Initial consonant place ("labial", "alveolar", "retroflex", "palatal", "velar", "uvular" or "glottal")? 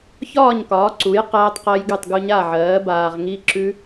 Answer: palatal